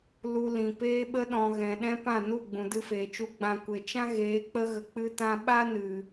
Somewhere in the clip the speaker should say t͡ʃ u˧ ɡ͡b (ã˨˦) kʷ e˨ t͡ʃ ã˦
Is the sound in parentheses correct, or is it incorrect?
incorrect